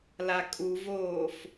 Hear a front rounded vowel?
no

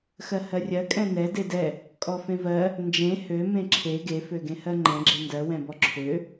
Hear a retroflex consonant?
no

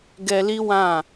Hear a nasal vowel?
yes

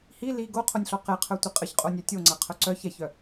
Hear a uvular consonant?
yes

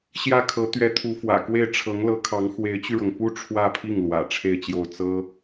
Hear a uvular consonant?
no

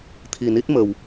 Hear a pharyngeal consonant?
no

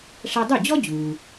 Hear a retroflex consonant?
yes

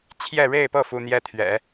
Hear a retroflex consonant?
yes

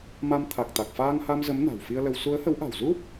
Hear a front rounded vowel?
no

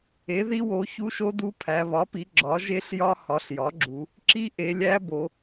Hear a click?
yes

